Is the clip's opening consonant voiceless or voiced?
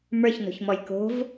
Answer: voiced